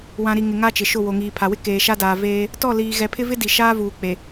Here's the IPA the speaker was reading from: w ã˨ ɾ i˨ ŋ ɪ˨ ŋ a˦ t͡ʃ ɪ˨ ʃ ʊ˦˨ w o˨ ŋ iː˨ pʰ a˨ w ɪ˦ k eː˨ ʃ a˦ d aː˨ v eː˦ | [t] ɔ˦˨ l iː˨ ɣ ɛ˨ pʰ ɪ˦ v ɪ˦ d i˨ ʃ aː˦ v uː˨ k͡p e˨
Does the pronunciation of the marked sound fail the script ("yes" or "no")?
no